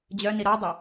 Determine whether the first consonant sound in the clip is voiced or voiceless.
voiced